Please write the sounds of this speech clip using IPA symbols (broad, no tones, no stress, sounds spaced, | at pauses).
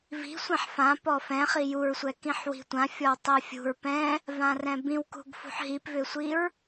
v i̤ sʷ ɛ̃ ħ f ã p ɔ f ɛ̃ χ i j u ɹ sʷ ɛ k ĩ ħ w i̤ tʷ ã fʲ ɔ w tˤ ɛ fʲ ṳ ɹ p ɛ̃ | v ã r ɛ̃ b ĩ w k ṳ ɡ f ṳ ħ ɦ i p v ʏ sʷ i ɹ